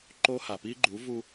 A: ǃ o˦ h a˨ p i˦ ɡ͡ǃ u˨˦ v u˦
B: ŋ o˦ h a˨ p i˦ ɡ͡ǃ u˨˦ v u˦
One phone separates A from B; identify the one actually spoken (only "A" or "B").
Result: A